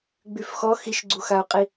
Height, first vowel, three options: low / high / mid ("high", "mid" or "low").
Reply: high